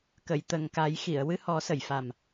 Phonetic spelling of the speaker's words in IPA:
kə˨˩˨jt̪ə˨˩ŋka˨˩˦jxi˨˩˨ə̯ wɨ˧hɔ˨˩˦sə˨˩˨jfa˨˩m

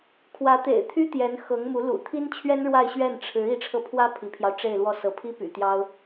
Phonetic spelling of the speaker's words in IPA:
kʰwä˧˥t̪ḛ˨˩ɪ̯t̪ʰy˥ t̪jɛ˧˥n xɤ˧˥ŋmu˧˥ lṵ˨˩t̪ʰi˥nt͡ɕʰɥɛ˥n ɻwa˥˧ɪ̯ɕɥɛ˥˩n ʈ͡ʂʰɻ̩˧˥ i˧˥ʈ͡ʂʰɤ˧pʰwä˥ pʰi˧˥pʰjɑ˧ʊ̯ʈ͡ʂe˥˧ɪ̯lwɔ˥˩ sɤ˧˥pʰi˥py̰˨˩t̪jɑ˥ʊ̯

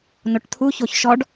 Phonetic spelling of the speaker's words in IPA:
noʈt̪ʰu çoçʃɔɖ

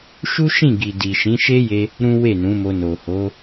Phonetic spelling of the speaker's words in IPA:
ʃu˦ʃĩ˦˨ɡi˨di˨ ʃĩ˨˦ʃe˦je˧ | ɾũ˦we˦˨nũ˨˦mo˧ no˨ho˨˦

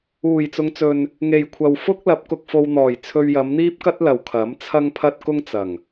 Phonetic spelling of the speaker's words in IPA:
uː˨˩jt͡sʊ˨˧ŋt͡sɵ˨n | ŋe˨jkʷʰɐ˨w fʊ˥k̚lɐ˨˥p̚ kʊ˧k̚fo˧wn̪ɔː˨˩j t͡sʰɵ˧ɥjɐ˨˧mn̪iː˥p̚kɐ˥t̚ lɐ˨wkʰɐ˨˥mt͡sʰɐ˥ŋpʰɐ˥t̚ kʊ˥ŋt͡sɐ˨˩ŋ

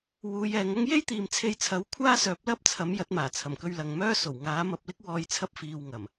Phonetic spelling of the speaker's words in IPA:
wuː˨˧jɛː˨˧ŋɐ˥ŋ je˥jt̪iː˨m t͡sʰe˧jt͡sʰɐ˨˥w kʷʰaː˥sœː˨˥p̚lɐ˥p̚t͡sʰɐ˨˥m jɐ˨˥t̚maː˨˩ t͡sʰɐ˨˩mkɵ˧ɥlɐ˨ŋ mœː˥so˨˩w ŋaː˨˥mɐ˧p̚lɪ˥k̚wɔː˧j t͡sʰɐ˥p̚fiː˧wŋɐ˨˩m

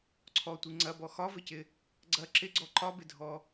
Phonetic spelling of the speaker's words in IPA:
ǀʰɔtʷi ŋ͡ǀɐbɔ xɒvɘcɪ | ɡ͡ǀɐ ǁɪɡ͡ǀɔ ǃɒbɪdʱɔ

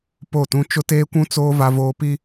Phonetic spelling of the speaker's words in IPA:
po˦˨tũ˦ t͡ʃʊ˦teː˦kʷũ˦t͡soː˦ va˦voː˦pi˦

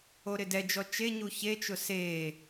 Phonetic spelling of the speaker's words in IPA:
oɾɪdɛd͡ʒɔ t͡ʃe ɲuçet͡ʃʊ se

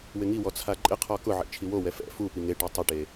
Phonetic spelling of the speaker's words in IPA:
wɪŋiwɔ t͡sʰaǃʼɪqʰɔ kʊʕḭ t͡ʃʰiwowɛ fɛ̰ fupi ŋeʈa tˤɪʈe

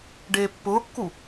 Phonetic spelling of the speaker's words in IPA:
ɖeːpːʊːkːu

